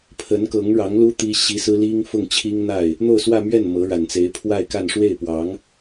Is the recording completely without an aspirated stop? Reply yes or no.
no